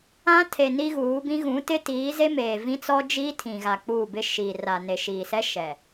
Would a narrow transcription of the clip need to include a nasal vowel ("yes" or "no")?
yes